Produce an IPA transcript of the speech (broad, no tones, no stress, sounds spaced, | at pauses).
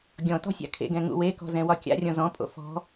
ɡʲ ɔ̃ t ɔ̤ sʲ a̰ kʰ ḛ ɡ ɛ̃ ŋ ṵ w e k ɔ̤ z ɛ̃ w ɒ kʲ a̰ rʲ ɔ̃ z ɔ̃ pʼ o̰ f ɔ̤